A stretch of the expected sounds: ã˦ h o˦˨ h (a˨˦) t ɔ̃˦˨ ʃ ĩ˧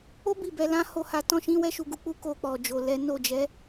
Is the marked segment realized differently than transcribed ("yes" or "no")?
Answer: no